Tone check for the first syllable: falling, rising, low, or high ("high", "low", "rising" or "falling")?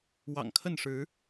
low